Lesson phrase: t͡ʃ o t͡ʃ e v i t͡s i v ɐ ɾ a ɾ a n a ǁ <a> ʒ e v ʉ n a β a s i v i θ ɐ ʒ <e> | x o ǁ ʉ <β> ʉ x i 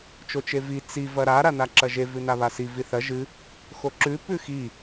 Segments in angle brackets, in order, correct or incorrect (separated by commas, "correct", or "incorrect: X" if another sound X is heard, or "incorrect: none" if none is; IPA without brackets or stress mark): incorrect: ɐ, incorrect: ɨ, incorrect: p